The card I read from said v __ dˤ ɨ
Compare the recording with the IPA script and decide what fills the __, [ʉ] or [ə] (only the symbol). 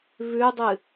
ʉ